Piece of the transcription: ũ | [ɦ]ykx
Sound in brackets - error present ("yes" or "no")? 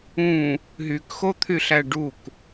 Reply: no